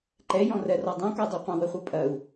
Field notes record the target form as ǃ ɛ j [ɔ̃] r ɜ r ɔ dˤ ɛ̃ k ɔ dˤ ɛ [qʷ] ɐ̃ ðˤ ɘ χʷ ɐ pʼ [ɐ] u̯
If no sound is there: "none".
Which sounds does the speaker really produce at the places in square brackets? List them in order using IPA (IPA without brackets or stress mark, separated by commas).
ɔ̃, qʷ, ɐ